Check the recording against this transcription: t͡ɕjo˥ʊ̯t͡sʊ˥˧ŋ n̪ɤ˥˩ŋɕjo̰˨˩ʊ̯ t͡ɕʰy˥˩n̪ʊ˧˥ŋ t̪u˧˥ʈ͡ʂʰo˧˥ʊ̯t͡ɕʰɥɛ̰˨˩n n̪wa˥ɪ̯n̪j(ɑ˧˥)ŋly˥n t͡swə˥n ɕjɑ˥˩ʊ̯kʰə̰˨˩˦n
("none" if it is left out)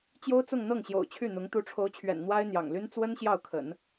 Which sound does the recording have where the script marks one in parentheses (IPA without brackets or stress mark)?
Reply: ɑ̰˨˩